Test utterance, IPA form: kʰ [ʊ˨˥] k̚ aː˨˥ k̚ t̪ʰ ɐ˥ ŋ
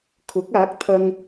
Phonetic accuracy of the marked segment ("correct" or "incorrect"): correct